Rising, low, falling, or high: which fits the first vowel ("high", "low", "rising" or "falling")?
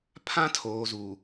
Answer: high